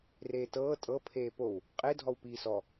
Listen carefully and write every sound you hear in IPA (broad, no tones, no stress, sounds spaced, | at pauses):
r eː t ɤː tʼ ɤ pʰ eː p o w | qʼ e dʱ ɔ w p iː s ɔ